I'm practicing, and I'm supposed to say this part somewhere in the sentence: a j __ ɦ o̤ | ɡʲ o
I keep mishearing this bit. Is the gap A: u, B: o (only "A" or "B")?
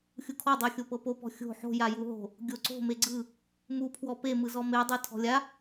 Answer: A